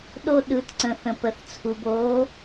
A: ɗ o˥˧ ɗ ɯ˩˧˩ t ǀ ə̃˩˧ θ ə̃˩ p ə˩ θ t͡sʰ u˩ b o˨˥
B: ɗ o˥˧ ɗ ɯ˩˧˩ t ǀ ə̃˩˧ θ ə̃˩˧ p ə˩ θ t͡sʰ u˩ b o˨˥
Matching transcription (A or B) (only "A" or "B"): A